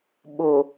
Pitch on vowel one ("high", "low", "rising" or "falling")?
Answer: low